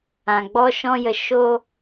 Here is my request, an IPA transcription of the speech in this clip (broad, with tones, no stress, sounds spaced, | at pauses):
ã˨ ɡ͡b ɔ˦ ʃ ɔ̃˦ j ə˧ ʃ o˦